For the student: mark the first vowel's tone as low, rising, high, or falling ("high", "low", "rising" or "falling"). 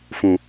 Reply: low